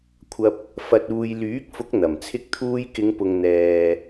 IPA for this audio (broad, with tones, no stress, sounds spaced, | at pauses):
kʷʰ ɐ˧ p̚ | f ɐ˨ t̚ uː˨ j l yː˨˥ k̚ f ʊ˨˥ k̚ n̪ ɐ˨˩ m t͡sʰ ɪ˥ k̚ t̪ʰ uː˥ j k ɪ˨˧ ŋ p ʊ˨ ŋ n̪ ɛː˨